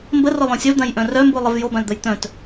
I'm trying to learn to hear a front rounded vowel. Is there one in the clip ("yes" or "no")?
yes